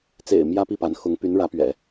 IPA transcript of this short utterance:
t͡sḛ˨˩ɪ̯ mjä˥pi˥˩pa˧˥nxʊ˧˥ŋ py˧˥nɻä˧˥pɥɛ̰˨˩˦

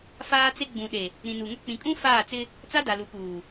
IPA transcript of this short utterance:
faː˦t͡se˦ ɡ͡bũ˨ɗe˨ | ɾĩ˨nu˨ŋʊ˦ k͡pĩ˨kʼũ˦ faː˦˨t͡sɪ˦ | t͡sa˦da˨lu˨ puː˨

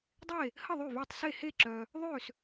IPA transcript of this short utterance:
dˤe˥˨ | hə˥˨ ðˤy˥˨vy˥˨tˤ se˥˨ he˥˨ǁœ˨ | ðˤø˥˨s

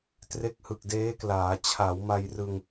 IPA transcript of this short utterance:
tre˦˥k̚hɯ˨˩k̚deː˦˥klaː˩˦ t͡ɕʰa˩˦wma˧jrɯ˧ŋ

